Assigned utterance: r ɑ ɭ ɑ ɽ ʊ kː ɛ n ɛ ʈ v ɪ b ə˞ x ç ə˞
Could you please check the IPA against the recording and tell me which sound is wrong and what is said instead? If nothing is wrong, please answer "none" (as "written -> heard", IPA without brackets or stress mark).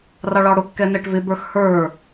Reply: ç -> h